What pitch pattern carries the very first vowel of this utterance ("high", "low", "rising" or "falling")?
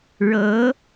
rising